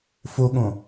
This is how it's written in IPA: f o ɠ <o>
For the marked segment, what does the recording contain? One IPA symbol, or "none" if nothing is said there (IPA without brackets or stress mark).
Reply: õ